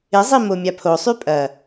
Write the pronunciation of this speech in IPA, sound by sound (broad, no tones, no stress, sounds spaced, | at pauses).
ɪ zˤ i m o mʲ a pʰ o sˤ y pʼ ɐ